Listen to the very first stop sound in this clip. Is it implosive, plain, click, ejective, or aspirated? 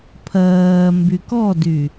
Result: aspirated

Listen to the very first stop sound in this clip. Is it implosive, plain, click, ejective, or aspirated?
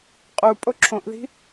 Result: ejective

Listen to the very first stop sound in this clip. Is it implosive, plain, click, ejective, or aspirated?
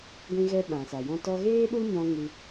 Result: plain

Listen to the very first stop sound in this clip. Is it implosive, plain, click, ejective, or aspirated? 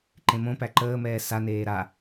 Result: click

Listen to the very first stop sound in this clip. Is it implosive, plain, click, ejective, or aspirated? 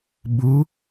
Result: implosive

